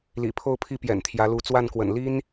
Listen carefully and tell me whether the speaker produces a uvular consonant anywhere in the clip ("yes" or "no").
no